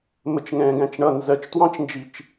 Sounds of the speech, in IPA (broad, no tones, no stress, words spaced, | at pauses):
mət͡ʃŋɛ̃ːɡæ̃t͡ʃɳʌ nzɜt͡ʃtwɑ̃t͡ʃnd͡ʒit͡ʃ